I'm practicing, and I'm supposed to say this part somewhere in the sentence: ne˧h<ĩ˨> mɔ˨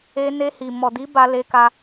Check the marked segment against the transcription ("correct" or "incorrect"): incorrect